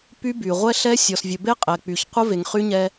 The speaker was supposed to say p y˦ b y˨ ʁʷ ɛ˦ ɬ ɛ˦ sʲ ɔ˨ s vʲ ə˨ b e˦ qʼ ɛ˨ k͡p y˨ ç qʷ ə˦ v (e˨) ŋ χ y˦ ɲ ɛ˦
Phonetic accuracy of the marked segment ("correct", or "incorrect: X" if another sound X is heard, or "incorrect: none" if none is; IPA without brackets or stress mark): correct